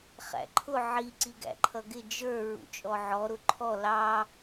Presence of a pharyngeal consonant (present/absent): present